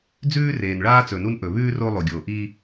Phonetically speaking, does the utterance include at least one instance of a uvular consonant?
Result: no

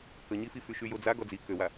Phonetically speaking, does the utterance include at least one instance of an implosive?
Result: no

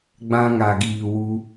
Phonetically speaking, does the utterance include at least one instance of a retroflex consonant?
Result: no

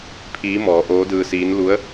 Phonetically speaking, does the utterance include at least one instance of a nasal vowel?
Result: no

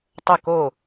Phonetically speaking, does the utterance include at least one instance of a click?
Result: no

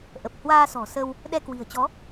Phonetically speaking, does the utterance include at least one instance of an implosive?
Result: yes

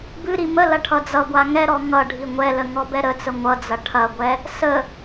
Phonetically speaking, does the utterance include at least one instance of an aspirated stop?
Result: yes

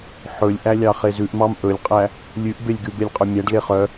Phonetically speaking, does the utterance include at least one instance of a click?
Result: no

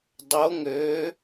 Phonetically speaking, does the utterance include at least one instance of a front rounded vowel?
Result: yes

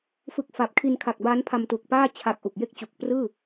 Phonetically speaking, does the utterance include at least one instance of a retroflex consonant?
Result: no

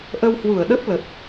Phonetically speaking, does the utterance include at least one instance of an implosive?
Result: yes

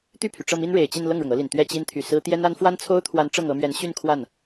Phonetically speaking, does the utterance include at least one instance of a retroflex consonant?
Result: yes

